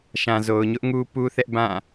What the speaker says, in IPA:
ʃã˨zo˨ʊ̯ɲʊ˦ʔŋu˦ pu˦θɛ˦ʔ bã˦˨

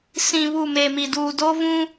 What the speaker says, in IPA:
sĩ˨ βu˦˨me˨mi˨ duː˨doː˦vũ˦

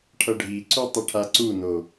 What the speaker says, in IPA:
ʈʰʌɖʱiǀu tˤiʈʰaǀuno

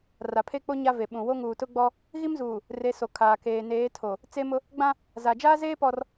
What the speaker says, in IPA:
ra˨pʰe˦k͡po˦ ɲa˦ve˨ɓũ˨ wo˦ŋuː˨tʊ˦ɡ͡bɔ˦ | ɣi˦mzuː˨ | re˨˦so˨ kʰaː˨keː˨ neː˨˦tʰo˨ | t͡se˦mʊ˦ | ɡ͡bã˦ | za˨d͡ʒaː˦zeː˦ pɔ˦r

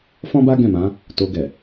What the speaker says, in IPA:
fɔ̃˦ba˦ ɡɛ̃˦˨mã˨˦ | to˧ɡɛ˨

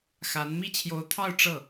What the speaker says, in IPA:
xa˧˥n mi˥˩t͡ɕʰjo˧˥ʊ̯t̪ʰɑ˥˧ʊ̯ ʈ͡ʂɤ˥˩

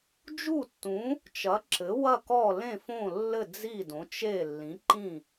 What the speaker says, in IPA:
d͡ʒu˥˩tːũ˩˥ | t͡ʃɐ˩˥ǁɘ˩˥ wɐ˥˩kɔ˥˩ lẽ˥˩fõ˥˩lːɘ˥˩ d͡zi˥˩dõ˩˥t͡ʃe˥˩ lːĩ˩˥ǃĩ˥˩

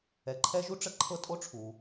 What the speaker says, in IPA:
ɛ˨ǃʰɛ˥ʒu˥ʈ͡ʂə˥ ǃʰɤ˦tʼo˥ʈ͡ʂʰu˩

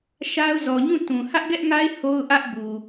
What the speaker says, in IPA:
ʃa˦ʊ̯ zɔ˨ɲũ˦˨ tũ˨ hä˦ʔɡɛ˦ʔŋa˦ɪ̯ ho˦ʊ̯ʔä˦ʔ bu˨

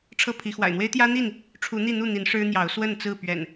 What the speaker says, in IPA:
ʈ͡ʂʰɤ˥˨pʰi˨˦ xwa̰˨˩ɪ̯n̪we˦ɪ̯ t̪jä˦n̪i˥˨n | ʈ͡ʂʰu˨˦n̪i˥˨ n̪u˥˨n̪i˨˦n ʂɻ̩˦n̪jɑ˨˦ʊ̯ swə˥˨nt͡sɹ̩˥˨ pɥɛ̰˨˩n

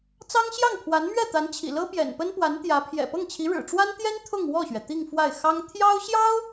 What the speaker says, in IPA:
t͡sɑ˥ŋɕjɑ˥˩ŋpʰwa˧˥n mɥɛ˥˩t̪a˧˥nt͡ɕʰḭ˨˩ lɤ˥pjɛ̰˨˩n pə˥npwa˧˥n t̪jä˧˥ pʰjɛ̰˨˩pɤ˥˩ŋt͡ɕʰi˧˥ɻɻ̩˨˩ ʈ͡ʂwa˥nt̪jɛ˥n t̪ʰʊ˥˧ŋwɔ˥˩ɕɥɛ˩ t̪i˥˧ŋ fwa˥˩ɪ̯ xɑ˥ŋ t̪ʰjɑ˥ʊ̯ɕjɑ˥ʊ̯

